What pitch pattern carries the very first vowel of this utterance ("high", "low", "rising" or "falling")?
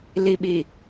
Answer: low